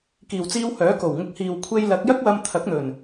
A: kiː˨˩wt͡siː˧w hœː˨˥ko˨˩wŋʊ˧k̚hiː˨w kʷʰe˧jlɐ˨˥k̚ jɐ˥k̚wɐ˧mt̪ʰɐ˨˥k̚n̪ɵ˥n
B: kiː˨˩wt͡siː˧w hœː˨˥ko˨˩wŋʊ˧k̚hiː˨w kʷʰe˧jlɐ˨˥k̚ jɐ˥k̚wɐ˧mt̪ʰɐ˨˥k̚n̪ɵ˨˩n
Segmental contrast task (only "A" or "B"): B